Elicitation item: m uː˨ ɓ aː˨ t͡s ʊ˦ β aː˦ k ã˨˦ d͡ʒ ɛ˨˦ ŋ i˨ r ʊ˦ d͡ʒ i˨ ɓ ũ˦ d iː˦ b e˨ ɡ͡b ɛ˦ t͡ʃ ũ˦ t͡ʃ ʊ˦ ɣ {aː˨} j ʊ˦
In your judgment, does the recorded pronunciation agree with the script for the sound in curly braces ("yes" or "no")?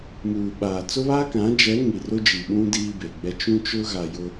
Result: no